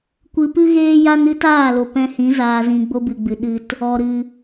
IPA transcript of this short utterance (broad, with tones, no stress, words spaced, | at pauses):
kʷɨ˧pɨ˦ɣeː˦ja˦n ɨ˦taː˦˨lo˨ pɛ̃˧hĩ˨˦ zaː˧zĩ˧ ɡ͡bo˧bɨ˨ɡ͡bɨ˨ ɗɨ˦t | ɔ˨ ɾɨ˧